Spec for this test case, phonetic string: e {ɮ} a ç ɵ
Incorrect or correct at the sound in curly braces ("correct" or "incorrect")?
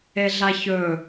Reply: correct